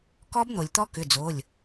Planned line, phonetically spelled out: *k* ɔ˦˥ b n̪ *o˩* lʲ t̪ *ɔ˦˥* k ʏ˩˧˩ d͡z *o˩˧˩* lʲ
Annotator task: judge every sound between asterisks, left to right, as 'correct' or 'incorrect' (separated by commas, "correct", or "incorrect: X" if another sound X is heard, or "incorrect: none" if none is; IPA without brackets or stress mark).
correct, correct, correct, correct